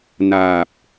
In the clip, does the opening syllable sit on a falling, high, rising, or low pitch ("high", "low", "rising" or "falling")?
low